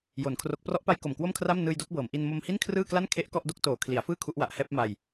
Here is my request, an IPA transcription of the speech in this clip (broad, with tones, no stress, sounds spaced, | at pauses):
j o˨˩ n kʰ r o˦˥ k̚ p r ɔ˦˥ ʔ p a˦˥ j k o˨˩ m k w o˥˩ m kʰ r a˥˩ m n ɯː˧ j d o˦˥ k̚ b ɤː˩˦ m ʔ i˧ n m o˧ m h i˥˩ n kʰ r ɯː˥˩ k l a˥˩ n kʰ e˦˥ ʔ k ɔ˥˩ ʔ d o˥˩ k̚ t oː˨˩ kʰ l i˩˦ a̯ f ɯː˥˩ kʰ u˦˥ ʔ w a˨˩ ʔ h ɛː˥˩ p̚ m a˧ j